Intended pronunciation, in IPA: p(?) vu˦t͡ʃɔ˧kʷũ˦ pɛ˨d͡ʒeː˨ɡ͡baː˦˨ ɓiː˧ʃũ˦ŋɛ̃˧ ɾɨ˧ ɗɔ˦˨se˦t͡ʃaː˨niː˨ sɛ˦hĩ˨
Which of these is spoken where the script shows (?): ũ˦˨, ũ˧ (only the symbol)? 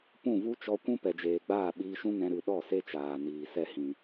ũ˦˨